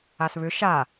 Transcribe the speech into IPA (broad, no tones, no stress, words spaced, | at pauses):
asβʏ ʃa